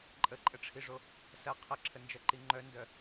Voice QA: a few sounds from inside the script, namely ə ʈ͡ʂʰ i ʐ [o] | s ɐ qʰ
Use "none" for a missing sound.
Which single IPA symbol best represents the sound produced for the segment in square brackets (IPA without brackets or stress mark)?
o